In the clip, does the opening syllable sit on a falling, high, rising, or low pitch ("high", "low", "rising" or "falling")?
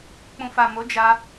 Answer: low